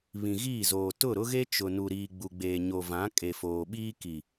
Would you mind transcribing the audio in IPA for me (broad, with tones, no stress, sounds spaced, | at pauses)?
β ĩ˨ ɣ iː˦˨ z oː˨ t ʊ˦˨ ɾ ʊ˦ ɣ e˦ t͡ʃ ʊ˨ n u˨ ɾ iː˨ ɡ͡b u˨ ɡ͡b eː˨ ɲ o˨ v ã˨˦ kʼ e˨ f oː˨ ɓ iː˦ k i˨